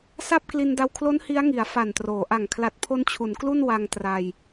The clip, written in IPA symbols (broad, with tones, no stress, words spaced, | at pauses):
sa˥˩p̚ kli˧nda˧wkʰlo˦˥n hi˦˥a̯ŋi˩˦a̯ fa˨˩ntroː˩˦ʔa˨˩ŋ kʰla˨˩t̚pʰo˧n t͡ɕʰu˩˦nklu˥˩n wa˧ŋtra˧j